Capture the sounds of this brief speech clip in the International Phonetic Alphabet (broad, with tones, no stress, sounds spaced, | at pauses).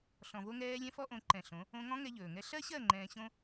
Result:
ɬ ɔ̃˨ v o˧ ŋ ɛː˧ lʲ ɛ̃˦ f ɔ˦ ʔ õ˨˦ ǃ ɛ̃˨ ɬ õ˨˦ | õ˧ ŋ ɔ̃˦ ŋ ɛ˧ ʎ ɵː˨ ŋ ɛ˦ ɬ ɜ˦ ɕ ɜ˦˨ ŋ͡ǃ ɛ̃ː˧ ɕ õ˦